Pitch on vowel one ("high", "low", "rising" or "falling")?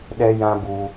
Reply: high